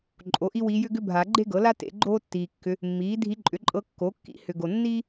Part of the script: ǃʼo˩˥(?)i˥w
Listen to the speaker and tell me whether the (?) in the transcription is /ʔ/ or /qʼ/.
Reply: ʔ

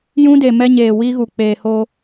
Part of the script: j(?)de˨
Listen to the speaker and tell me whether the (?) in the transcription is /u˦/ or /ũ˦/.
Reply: ũ˦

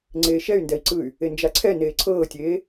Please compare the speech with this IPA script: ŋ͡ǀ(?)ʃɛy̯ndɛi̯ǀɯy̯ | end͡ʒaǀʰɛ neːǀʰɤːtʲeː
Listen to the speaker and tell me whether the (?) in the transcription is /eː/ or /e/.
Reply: eː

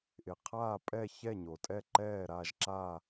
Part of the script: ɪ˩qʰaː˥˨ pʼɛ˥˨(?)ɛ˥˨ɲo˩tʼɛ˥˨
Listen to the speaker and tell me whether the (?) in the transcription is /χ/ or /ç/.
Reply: ç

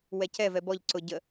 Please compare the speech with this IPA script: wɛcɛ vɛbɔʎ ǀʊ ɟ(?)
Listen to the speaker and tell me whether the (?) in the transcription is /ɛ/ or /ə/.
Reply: ə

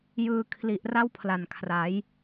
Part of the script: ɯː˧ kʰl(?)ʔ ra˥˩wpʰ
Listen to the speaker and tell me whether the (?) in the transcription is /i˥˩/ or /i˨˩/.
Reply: i˨˩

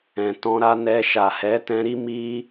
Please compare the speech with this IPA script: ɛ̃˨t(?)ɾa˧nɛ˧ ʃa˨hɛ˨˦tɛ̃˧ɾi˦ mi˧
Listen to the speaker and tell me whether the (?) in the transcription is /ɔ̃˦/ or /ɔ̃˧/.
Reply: ɔ̃˧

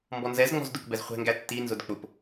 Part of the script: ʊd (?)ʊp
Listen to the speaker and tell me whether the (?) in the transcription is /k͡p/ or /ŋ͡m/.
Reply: k͡p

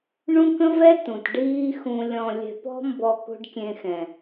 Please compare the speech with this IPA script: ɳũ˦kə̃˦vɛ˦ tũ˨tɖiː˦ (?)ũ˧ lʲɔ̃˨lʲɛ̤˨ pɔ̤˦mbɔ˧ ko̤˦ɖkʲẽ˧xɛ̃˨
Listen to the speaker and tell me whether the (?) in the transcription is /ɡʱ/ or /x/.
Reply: x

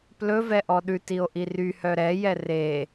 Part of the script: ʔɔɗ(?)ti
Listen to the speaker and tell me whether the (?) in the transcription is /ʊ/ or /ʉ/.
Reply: ʉ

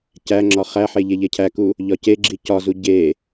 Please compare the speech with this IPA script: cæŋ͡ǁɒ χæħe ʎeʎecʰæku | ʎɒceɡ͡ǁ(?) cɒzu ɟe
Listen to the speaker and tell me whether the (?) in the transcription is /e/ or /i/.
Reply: i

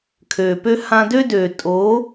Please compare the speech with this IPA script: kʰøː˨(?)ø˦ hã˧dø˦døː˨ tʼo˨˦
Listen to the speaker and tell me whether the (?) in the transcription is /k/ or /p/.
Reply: p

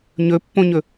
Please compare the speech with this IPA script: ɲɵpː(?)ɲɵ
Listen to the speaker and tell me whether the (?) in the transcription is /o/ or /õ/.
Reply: õ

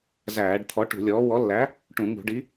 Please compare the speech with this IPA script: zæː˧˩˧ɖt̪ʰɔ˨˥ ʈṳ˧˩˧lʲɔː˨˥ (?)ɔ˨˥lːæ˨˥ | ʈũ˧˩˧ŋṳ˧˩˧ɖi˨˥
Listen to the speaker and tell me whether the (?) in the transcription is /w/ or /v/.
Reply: w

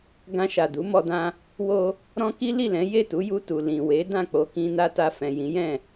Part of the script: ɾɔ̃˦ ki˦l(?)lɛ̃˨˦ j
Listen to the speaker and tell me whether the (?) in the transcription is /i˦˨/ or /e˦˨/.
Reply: i˦˨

